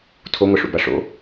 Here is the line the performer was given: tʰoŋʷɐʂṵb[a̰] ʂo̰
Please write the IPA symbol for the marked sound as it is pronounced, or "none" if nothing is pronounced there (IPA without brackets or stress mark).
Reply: a